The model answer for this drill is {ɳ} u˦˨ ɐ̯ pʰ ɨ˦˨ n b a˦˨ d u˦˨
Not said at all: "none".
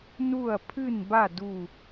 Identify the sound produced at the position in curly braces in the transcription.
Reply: n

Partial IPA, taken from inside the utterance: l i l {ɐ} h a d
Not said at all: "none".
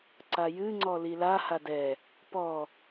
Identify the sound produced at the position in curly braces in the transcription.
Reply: a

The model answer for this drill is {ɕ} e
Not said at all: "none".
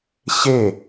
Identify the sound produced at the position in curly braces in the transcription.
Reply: ɕ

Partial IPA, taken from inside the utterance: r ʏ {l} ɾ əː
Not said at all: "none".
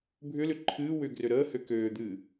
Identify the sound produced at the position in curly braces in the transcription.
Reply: none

